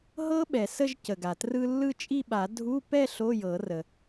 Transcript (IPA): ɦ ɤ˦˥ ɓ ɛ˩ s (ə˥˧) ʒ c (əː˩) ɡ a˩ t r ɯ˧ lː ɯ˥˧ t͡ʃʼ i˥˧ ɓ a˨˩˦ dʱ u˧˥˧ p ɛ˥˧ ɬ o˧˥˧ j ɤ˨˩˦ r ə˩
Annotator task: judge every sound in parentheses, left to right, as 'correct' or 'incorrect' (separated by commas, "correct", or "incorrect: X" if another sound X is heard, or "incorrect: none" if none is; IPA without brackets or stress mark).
correct, incorrect: ə˩